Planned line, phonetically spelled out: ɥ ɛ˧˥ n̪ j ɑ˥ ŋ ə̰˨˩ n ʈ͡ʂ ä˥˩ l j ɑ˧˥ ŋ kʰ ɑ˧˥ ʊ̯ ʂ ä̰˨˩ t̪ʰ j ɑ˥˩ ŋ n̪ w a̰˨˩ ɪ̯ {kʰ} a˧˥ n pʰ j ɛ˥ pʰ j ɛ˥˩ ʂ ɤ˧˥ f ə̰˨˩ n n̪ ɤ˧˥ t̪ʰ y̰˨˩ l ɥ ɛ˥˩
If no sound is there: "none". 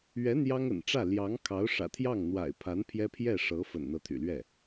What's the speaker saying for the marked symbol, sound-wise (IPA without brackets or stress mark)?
pʰ